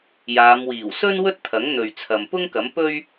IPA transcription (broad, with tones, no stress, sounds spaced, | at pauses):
j aː˨˧ m w iː˨˩ w s ɵ˥ n w ɵ˥ t̚ t̪ʰ ɐ˨˥ ŋ n̪ ɵ˨ ɥ t͡sʰ ɐ˨ m p ʊ˥ ŋ k ɐ˨˥ m p ɵ˥ ɥ